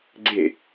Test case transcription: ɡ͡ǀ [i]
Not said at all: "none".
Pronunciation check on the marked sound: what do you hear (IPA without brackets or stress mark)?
e